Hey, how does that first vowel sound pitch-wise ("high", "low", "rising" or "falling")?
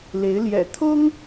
rising